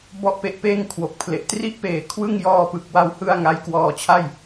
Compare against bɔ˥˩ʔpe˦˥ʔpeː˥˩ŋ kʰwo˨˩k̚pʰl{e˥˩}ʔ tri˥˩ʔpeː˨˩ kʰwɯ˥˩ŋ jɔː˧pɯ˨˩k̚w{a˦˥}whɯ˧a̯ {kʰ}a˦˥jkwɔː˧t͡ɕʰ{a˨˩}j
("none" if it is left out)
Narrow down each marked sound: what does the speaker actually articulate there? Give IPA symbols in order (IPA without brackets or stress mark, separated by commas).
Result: e˨˩, a˧, ŋ, a˥˩